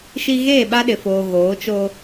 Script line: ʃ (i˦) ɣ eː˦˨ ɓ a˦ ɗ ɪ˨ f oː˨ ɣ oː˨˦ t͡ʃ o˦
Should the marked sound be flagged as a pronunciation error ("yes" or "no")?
no